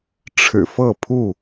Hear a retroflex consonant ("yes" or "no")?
yes